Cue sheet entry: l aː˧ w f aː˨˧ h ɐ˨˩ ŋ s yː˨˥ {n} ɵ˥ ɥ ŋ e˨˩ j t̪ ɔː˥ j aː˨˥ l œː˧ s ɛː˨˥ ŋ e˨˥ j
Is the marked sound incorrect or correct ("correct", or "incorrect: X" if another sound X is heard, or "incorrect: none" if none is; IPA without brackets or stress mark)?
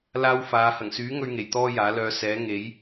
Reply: incorrect: ŋ